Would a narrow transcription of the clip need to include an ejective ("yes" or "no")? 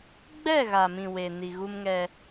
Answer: no